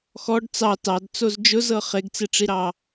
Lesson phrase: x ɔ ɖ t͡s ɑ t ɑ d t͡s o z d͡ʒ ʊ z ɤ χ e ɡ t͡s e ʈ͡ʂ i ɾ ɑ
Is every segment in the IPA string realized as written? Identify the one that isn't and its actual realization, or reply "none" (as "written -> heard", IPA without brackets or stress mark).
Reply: none